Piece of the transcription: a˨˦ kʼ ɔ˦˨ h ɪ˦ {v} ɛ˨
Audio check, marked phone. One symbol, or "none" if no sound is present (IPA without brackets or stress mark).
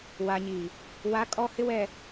w